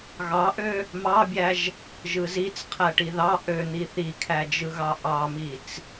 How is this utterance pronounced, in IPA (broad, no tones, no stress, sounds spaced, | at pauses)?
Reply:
ɣ ɑ ʔ ø | m ɑ bʲ æ ʒ | ʒ ɯ z i t͡s qʰ æ ʈ i ð ɑ ʔ ø n̪ i θ i kʰ æ d͡ʒ ɯ ɣ ɑ ʔ ɑ m i t͡s